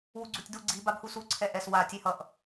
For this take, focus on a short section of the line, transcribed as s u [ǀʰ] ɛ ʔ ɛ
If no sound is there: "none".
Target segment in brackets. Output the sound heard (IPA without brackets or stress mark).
ǀʰ